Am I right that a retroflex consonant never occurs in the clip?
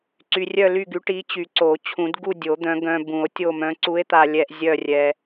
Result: no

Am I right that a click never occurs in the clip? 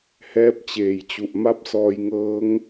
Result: yes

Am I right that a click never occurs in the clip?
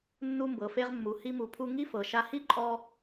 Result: no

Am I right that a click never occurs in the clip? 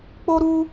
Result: yes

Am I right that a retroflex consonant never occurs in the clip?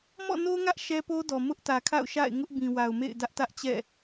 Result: yes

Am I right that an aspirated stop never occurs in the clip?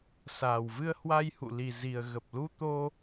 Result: yes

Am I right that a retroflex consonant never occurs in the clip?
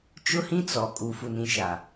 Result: yes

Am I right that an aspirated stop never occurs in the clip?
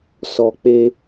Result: yes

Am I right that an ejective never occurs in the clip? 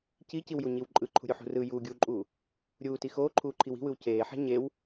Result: no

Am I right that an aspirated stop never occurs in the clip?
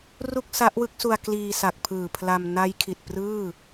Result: no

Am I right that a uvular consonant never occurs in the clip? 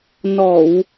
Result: yes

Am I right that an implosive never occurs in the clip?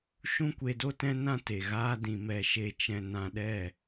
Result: no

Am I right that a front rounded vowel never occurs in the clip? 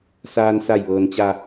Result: yes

